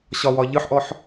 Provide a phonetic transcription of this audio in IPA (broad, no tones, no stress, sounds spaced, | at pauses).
ɕ ɒ w ɒ ʎ ɯ ħ ʔ ɔ ħ